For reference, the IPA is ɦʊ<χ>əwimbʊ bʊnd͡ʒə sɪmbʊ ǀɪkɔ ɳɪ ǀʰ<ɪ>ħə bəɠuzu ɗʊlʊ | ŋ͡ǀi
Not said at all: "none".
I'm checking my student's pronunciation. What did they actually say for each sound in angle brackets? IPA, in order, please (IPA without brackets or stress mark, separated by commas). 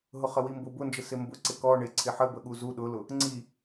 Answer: χ, ɪ